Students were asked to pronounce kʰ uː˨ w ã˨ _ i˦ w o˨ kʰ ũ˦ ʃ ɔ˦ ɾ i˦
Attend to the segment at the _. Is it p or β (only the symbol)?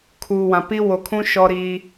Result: p